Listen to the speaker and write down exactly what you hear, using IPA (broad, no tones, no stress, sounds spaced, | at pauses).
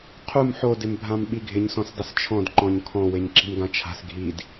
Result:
qʰ u m ħ o d ɪ m bʱ ã m ɓ i ɡʱ ɪ ɲ s ɔ̃ s dˤ ɪ s t͡ʃʰ ɔ̃ d ǃ ɔ̃ ɲ kʰ ɔ̃ w e ɲ ǁ i̤ m ɡ ã t͡ʃʰ a̤ s ɡʱ i d